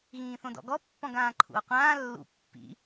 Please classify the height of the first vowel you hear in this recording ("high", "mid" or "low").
high